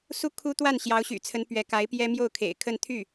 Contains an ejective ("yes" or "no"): no